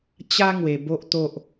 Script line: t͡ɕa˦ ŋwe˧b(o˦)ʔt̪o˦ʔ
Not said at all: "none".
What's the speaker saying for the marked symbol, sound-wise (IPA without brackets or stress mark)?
o˦